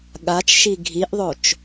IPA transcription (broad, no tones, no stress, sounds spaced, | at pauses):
ɠ a t͡ʃ ʃ i ɡʱ i ʔ ðˤ o t͡ʃ